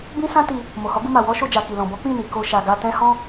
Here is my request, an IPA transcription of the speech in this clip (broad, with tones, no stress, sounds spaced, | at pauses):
b ĩ˦ s ã˦ t i˧ | m o˨ h ɔ˨˦ ɡ u˧ m a˨ w ɔ˨˦ ʃ o˧ d͡ʒ a˨ k i˨ l ɔ̃˨ b ɔ˨˦ k͡p ĩ˦˨ n i˨ k o˧ ʃ a˨ ɡ a˧ t ɛ̃˦ h ɔ̃˦